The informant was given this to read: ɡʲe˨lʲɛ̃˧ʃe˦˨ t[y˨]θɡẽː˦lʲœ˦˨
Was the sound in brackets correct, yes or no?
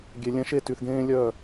yes